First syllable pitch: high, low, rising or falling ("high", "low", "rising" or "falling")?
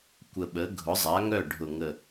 low